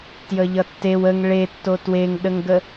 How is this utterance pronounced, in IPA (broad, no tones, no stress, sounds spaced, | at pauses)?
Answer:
t j ə ʎ ʌ tː e w ə ŋ ɭ e tː o t w e ŋ ɗ ə ŋ ɡ ə